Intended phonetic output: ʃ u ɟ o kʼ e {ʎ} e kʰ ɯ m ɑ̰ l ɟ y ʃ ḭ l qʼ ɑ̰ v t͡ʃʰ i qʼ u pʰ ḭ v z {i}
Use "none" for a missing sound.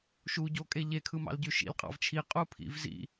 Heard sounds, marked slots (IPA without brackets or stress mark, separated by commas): ʎ, ḭ